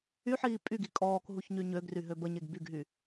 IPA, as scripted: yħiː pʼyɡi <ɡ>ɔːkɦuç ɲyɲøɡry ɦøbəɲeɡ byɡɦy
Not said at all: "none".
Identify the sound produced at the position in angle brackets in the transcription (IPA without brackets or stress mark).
kʼ